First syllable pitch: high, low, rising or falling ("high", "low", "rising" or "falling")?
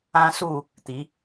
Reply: high